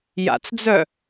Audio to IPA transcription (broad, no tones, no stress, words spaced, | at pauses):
ja̰t͡sd͡zœ